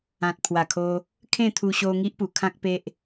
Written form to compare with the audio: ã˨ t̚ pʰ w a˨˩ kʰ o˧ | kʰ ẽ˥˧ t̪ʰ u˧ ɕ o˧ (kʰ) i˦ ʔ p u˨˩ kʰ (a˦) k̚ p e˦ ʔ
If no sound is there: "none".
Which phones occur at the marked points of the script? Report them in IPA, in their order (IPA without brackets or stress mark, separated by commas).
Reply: ŋ, ã˦